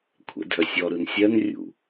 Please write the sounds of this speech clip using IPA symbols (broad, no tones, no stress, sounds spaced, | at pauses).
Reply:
kʷʰ ɛ̰ dʱ œ sʲ ɔ ɾ ɯ n sʲ ɜ n rʲ ṵ